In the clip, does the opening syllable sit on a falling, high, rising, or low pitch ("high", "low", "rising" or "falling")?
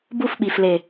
falling